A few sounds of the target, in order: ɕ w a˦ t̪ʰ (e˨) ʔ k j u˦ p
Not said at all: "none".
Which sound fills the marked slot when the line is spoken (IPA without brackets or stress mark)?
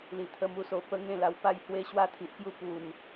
i˨